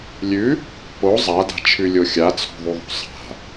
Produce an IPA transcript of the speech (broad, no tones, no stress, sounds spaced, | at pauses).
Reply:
lʲ ʉ | p o zˤ a d a̤ t͡ʃʰ ʉ lʲ o xʲ a t͡sʰ o̤ ðˤ u ðˤ o̤ sˤ a̤